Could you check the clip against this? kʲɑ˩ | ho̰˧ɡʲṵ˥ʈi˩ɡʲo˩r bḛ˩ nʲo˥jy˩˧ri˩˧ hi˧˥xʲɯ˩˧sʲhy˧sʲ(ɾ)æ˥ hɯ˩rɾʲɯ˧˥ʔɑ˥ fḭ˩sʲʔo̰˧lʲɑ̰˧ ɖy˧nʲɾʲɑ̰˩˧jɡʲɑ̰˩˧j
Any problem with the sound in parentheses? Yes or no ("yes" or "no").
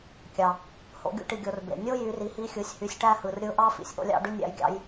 yes